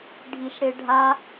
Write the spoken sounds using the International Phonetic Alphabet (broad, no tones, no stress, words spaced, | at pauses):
ɖʱiʃɽeɖʱa